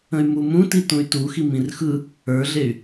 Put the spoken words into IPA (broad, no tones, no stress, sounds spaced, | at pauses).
ə̃ y̯ m u m ũ t i t ũ y̯ t u x i m ĩ r x ɯ | ə˞ ɮ e y̯